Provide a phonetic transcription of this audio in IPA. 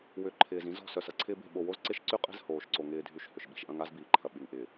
w ʏ˨˦ ǃʰ ɪː˨ z ĩ˦ z ɔ̤˨ s œ˨ s ɐ˨ ǀʰ ɪː˦ b e̤˦˨ ɓ o˨ w o˦ z ǀ ɪ˦ ʃ ǀ y˦ qʼ e̤˦ z h oː˨ ʃ ǀ o˨ ŋ ɪː˨ dʱ y˨ ʃ h ʏ˨ ʃ ɓ i̤˨ ʃ ʔ ɐ̃˦ ŋ a˦ z b iː˨ ǃʰ ɐ˨ ɓ y˨ ŋ ʔ ɪː˨

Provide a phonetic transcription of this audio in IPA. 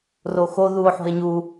r o x o ð u o̯ ħ o̤ e̯ ɲ u

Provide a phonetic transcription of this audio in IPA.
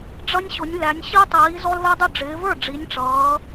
ɖ͡ʐ ʌ˦ nʲ ɕ ʊ˨˦ nʲ l æ˨˦ nʲ ɕ i˦ tˤ iː˨˦ z ɔ˦ l ð ɛ˦ dˤ ʊ˥˩ ɖ͡ʐ ɪː˨˦ v ə˞˥˩ ɖ͡ʐ i˨˦ nʲ ʈ͡ʂ ʌː˨˦

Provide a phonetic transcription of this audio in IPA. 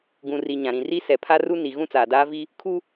ɡ ũ˨ r i˨ ɲ ã˨ ɾ ĩ˨ r i˦ s ɛ˨ pʰ a˦ r u˦ n i˨ ɣ ũ˦ t͡s aː˨ d aː˦ v i˦ | kʰ u˦

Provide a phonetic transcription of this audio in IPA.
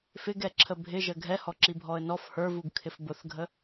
f ɪ ɡ ɛ ǁʰ ə bʱ ɪ ʒ ə ɡʱ ɛ h ɔ ǁ i bʱ ɔ ə̯ n ɔ f h ə˞ v u ɡ kʰ ɪ f b ʊ θ ɡʱ ə

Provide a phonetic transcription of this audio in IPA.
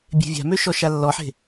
bʲ e̤ vʲ a̤ m ø ʃ ɔ ʃ a lː ɔ ħ e̤

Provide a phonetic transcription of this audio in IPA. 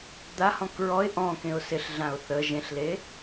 d̪ a h ɔ̃ k ɹ ɔ ɪ̯ ʔ ɔ̃ k ẽ ʊ̯ s ɪ ɬ ɮ ã ʊ̯ θ ə ʒ ẽ ɬ l e

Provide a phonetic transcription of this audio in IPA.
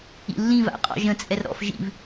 ḭ lː ĩ v a̰ qʼ ɔ̰ ʒ ə̃ t͡sʼ ɛ r ɾ ɔ̰ f ʒ ḭ v

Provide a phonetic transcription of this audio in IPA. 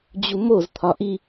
d͡ʑ u m o z t̪ʰ ɒ ʔ i

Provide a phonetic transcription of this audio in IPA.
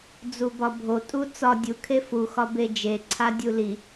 d͡z u b ɒ bʱ o tʼ u t͡s ɒ dʲ u kʰ e f u x ɒ b e d͡ʒ e ǀʰ a dʲ u l i

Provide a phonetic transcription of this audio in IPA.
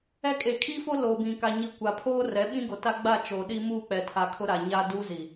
ɛ˦ kʼ e˨ kʰ i˦ f o˦ l oː˨ b ĩ˨ k a˨ ɲ i˨ kʷ a˨ pʰ oː˦ r ɛ˨˦ ɓ ĩ˦ ɡ o˨ t a˦ ɡ͡b a˦˨ t͡ʃ oː˨ ɗ i˦ m uː˦˨ k͡p ɛ˨ tʰ a˨ kʰ ʊ˦ ɾ a˨ ɲ a˦ d uː˦ z i˨

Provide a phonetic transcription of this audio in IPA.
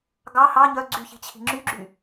ɡ ɑ h ɑ ɲ œ ɡ͡ǀ y ç i̤ t͡ɕʰ i̤ ŋ͡ǁ y ɡ͡ǁ y

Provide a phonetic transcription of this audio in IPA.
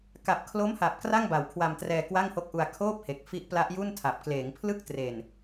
k a˨˩ p̚ kʰ l o˦˥ m h a˨˩ p̚ k r a˥˩ ŋ b a˨˩ w kʰ w a˧ m t r ɛː˧ k w a˥˩ ŋ h o˦˥ k̚ ʔ u˧ a̯ kʰ oː˥˩ p̚ h e˨˩ k̚ f i˦˥ ʔ p l a˦˥ ʔ j u˥˩ n tʰ a˨˩ p̚ k l eː˩˦ ŋ pʰ l ɯ˥˩ k̚ t r e˨˩ n

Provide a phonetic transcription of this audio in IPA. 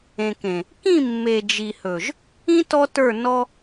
ẽ˨ k ẽ˨ | k ĩ˦˨ mː e˨ d͡ʒ i˨ h ɵ˨ ʒ | ĩ˦ t ɔ˦ t ə˞˦˨ n ɔ˦

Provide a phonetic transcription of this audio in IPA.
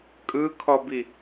kʼ ɯ kʰ ɔ b i

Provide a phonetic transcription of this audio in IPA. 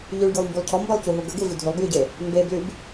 ʎ y ɭ ɡʲ u lˠ m b u lˠ cʰ ɔ m b ɐ lˠ c u ɦ u ɡ ə ɡ e v y dʱ y lˠ b j y ɟ e | m b e b l y b

